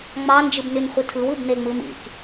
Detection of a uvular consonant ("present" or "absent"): present